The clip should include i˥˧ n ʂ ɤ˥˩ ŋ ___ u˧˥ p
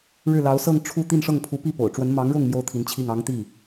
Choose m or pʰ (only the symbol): pʰ